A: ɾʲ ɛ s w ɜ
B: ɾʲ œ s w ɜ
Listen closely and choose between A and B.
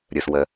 B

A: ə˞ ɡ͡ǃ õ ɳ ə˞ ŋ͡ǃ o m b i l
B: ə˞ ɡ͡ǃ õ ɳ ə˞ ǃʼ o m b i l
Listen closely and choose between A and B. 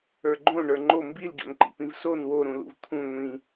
A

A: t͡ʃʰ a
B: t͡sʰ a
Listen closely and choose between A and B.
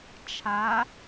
A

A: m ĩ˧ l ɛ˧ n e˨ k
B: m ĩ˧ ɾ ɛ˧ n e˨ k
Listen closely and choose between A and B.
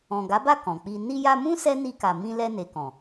A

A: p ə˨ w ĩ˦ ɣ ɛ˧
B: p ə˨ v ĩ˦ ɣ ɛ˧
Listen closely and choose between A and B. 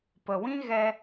A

